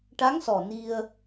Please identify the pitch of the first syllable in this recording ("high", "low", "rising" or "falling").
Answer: rising